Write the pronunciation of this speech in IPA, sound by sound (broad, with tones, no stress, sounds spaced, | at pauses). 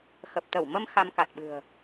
x ə˨˩ p̚ t̪ ə˧˩ w m ə˧ m x a˧ m k a˨˩ t̚ ɓ ɨ̤˨˩ ə̯